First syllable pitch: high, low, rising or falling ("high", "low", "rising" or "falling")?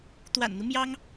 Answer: low